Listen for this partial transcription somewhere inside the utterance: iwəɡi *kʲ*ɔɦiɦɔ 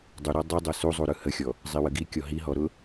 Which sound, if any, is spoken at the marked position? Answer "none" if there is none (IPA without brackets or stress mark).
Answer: kʲ